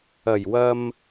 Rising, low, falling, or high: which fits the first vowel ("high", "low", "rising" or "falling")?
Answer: low